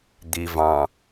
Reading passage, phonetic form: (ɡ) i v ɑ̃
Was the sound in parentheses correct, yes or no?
no